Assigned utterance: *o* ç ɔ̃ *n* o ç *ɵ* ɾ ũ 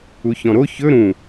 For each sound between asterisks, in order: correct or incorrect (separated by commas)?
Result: incorrect, incorrect, correct